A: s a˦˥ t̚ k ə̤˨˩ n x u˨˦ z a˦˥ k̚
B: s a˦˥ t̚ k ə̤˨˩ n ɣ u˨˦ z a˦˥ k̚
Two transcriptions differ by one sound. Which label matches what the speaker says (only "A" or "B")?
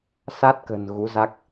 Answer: B